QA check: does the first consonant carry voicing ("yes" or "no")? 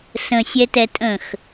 no